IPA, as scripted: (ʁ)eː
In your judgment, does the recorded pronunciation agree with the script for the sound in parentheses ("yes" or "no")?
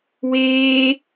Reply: no